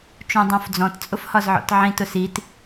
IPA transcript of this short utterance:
t͡ʃ ũ dˤ ũ f d͡z ɔ̃ t t͡sʼ ʊ f h ɒ z ʕ ɔ̰ t ʕ ĩ t ʊ s i t

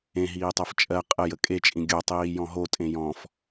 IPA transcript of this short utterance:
ẽ ɦ iː tˤ ɜ f t͡ʃʼ ɜ qʼ ə j ə kʼ e t͡ʃʼ ĩ ɡʲ o tˤ iː j ɔ̃ ɦ o tʼ ẽ j ɔ̃ f

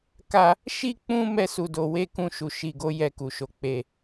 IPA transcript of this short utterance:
k a˧ | ʃ i˦ k͡p ũ˧ m ɛ˧ s u˨ d o˨ w e˧ k ũ˧ ʃ u˨ ʃ i˨ ɡ o˨˦ j ɛ˧ k u˨ ʃ o˨˦ k͡p e˧

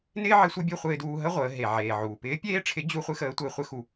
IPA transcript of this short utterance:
n ɪː˥ ʕ ɪ˧˥ sʷ ɪ˧˥ bʲ u˧ χʷ ɪː˧ d uː˧ ɦ ə˥ ʁʷ əː˩˧ ɦ e˩ ʕ eː˩ ʕ uː˩ p ɪː˧˥ pʲ eː˥ ʈ͡ʂʰ ɪ˧˥ d͡ʑ u˥ χʷ ɪ˥ x əː˧˥ tʷ ɪː˧ χʷ ɪ˥ x u˧

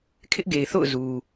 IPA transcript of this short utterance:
kʰ ɪ˦ ʔ ɡ e˨ ɪ̯ θ o̰˦˨ ʊ̯ z u˨

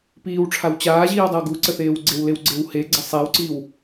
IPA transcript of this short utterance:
p iː w ʈ͡ʂʰ a w t͡ɕ aː ʑ iː w dˤ ə w ɡ u ǀ ə θ eː w ɡ͡ǀ e w l e w ɡ͡ǀ e w h e ɡ͡ǀ ə sˤ e w ǀ i w

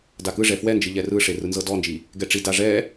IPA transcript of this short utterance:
d a k ɯ ʐ ɛ f w ɛ n d͡ʒ ɯ ʎ ɛ r ɯ ʂ e r ɯ n z ɤ d ɔ n d͡ʒ i | ɡ ɛ ʈ͡ʂ i d a ʐ ɛ

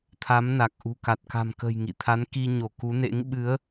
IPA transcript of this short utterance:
t̪ʰ a˨˦ m n a˨˩ k̚ ʔ ṳ˨˩ k a˨˩ t̚ k a̤˨˩ m k ə̤˨˩ j ŋ ḭ˧˨ t̪ʰ a˨˦ n k i˧ ɲ o˧˩ k u˨˦ n ḛ˧˥ ŋ ɓ ɨ˨˦ ə̯

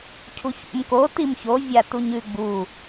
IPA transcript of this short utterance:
cʰ u ç ṵ m k o t i m ç o vʲ a t u ɲ ʉ ɡ͡b u

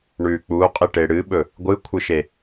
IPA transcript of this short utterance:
ɳ ʉ k͡p u qʼ i ʈ e ɽ ɨ ɓ ɵ | ɡʷ ɨ kʷʰ ɨ ʃ e

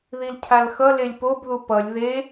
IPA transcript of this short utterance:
ð i l cʰ a l x ʌ l e lʲ p o b ð u p ʌ lʲ ð e

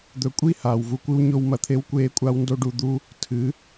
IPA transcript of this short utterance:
d̪ ɵ˨˦ kʷʼ i˦ h aː˨ w v u˧ kʷ ɨ˦ w ɲ o˧ w m ɐ˧ t̪ʰ e˦ w kʷ eː˦ kʷʼ a˦ w n d o˦ ɖ u˧ d̪ u˦ | tʰ ɨ˨˦

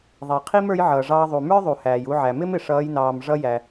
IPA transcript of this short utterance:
ðˤ i˩ qʰ i˥ m ə˞˧˥ j ʕ ʌː˩ ʐ ɑː˧ ðˤ u˩ m ə˞˥ ðˤ u˩ h æː˩ j u˧ ʕ æ˩ m ɪ˥ m ɪ˩ ʂ ʌː˩˧ j n ɑː˩ m ʐ ʌ˧ j æ˩

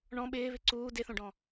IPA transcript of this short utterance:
ɳ ɔ̃ ɓ ɪː β ɪ ǀ uː d ɪ θ õ ɖ ɔ̃

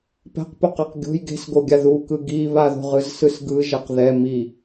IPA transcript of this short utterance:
p ɛ̤ q p o q ɛ q ɡʲ o̤ j ɡ e̤ s ɡ o ɡʲ a ð u k ɯ ɡ i β a ð o̤ ʁ ɯ z s ɯ s ɡ ɯ ʒ ɛ q ð ɛ m i

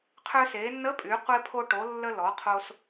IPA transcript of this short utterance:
qʰ ø˧ s e˩˧ nː ə˧˥ pʼ y˩˧ qʷ e˧ pʰ o˧ ʈ o˩˧ lː ə˧ l ɔ˩˧ qʰ o˧ s

